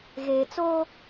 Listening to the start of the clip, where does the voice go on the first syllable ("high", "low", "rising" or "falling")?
low